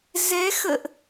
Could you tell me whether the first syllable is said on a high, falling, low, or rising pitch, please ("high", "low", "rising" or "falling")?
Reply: rising